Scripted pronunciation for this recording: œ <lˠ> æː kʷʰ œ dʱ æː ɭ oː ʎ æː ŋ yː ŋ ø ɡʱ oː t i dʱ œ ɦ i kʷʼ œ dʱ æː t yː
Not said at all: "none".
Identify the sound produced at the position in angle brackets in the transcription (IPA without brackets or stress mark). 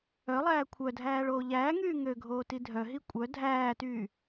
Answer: lˠ